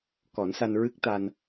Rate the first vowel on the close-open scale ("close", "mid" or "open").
mid